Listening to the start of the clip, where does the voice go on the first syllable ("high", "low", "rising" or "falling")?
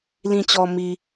low